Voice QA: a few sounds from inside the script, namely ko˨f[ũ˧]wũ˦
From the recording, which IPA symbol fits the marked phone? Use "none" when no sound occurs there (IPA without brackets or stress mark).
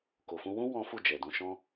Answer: ũ˧